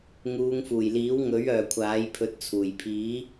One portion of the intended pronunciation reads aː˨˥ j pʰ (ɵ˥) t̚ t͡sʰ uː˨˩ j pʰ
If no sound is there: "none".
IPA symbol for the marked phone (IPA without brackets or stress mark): ɵ˧